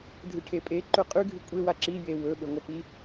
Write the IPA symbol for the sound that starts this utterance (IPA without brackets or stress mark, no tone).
dʱ